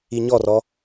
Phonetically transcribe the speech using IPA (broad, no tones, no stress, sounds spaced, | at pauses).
i ɲ ɔ r ɔ